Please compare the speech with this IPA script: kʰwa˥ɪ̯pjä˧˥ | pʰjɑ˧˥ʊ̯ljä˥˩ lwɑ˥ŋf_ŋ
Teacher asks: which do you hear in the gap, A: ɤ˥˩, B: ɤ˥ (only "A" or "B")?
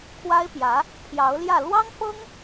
B